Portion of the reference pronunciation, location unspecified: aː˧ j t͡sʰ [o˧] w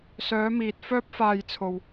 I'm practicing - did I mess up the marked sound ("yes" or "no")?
yes